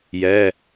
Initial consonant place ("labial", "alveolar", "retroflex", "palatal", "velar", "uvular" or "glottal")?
palatal